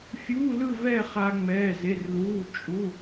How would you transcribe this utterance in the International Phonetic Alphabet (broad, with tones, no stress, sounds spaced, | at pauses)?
fʲ uː˧˥˧ l ɯ˥˧ v ɛː˥˧ χ a˧ ŋ͡m ɛː˩˧˩ z e˩˧˩ r l uː˩˧˩ t͡ʃʼ u˩˧˩